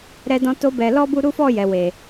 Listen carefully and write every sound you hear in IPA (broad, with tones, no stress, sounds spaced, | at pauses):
ɾ ɛ˧ d ɔ̃˧ t o˧ b ɛ˨ l ɔ˧ b u˧ ɾ u˦ f ɔ˦˨ j ɛ˨ w e˨